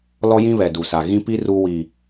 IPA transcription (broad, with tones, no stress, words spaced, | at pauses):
lɔ˦jĩ˦βɛ˨ du˨sa˨ ɣĩ˦pi˦ ru˦wi˨